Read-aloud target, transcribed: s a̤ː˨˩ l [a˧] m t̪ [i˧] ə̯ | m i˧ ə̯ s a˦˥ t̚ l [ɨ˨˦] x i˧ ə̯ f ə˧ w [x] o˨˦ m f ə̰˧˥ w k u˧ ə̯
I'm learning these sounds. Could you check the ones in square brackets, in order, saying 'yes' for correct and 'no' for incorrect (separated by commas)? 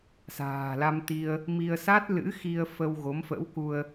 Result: yes, yes, no, no